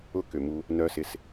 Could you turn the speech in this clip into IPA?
ʊ˥˨kʏ˨˩mu˧ | nœ˦˥sɪ˧s

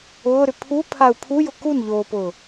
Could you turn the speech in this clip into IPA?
ʊːɾʏ pʰupʰau̯ pʰujʊ kunʎoːpʊː

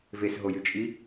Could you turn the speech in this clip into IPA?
vesɦojyt͡ʃʼi

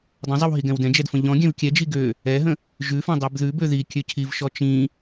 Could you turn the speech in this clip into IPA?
dˤə̃zˤiw ɦiɡɛ̃wdɛ̃d͡ʒɛd fə̃ʎɔ̃ɡʲɛ̃v kʲɛd͡ʒi ɡø | ɛɦə̃ | ʒʉfɛ̃ dˤibðʉbø ði kʲøcʰivʃɔ t͡ʃĩ

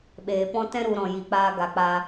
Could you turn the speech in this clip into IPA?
ɓeː˨pɔ̃˦ tɛ̃˦ɾu˨ ɾɔ̃˨ji˨k͡paː˧ ɡa˨k͡pa˧

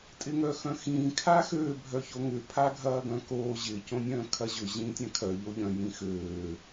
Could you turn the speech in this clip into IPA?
tʼɪŋœxœ̃xĩː kʰaxøː bʱœçoŋʏ pʰaɡʱɐːɡœ̃koː ʑɪ cõnʲœ̃ːkʰɐʑʏ ʑĩːtʲãkʰœ ʎoʎœ̃ jĩxøː

